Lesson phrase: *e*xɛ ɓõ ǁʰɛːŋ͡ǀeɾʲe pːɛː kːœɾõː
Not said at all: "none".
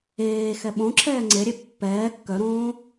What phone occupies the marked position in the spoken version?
eː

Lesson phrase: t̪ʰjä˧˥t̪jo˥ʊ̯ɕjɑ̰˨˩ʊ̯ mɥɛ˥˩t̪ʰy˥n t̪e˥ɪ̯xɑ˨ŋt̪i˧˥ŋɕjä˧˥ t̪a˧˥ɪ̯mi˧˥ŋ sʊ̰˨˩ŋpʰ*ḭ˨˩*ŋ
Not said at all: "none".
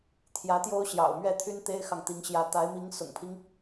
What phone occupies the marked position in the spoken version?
i˦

